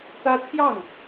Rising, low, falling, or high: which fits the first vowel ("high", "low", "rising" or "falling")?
high